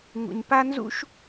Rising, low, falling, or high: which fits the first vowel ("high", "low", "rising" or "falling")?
low